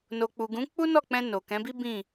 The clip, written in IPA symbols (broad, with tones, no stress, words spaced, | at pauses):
no˨k͡pu˨ɡũ˨˦ k͡pu˦nɔ˦˨k͡pɛ̃˧ no˨kɛ̃˨˦bi˦ bĩ˦˨